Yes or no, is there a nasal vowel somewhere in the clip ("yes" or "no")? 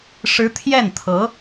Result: no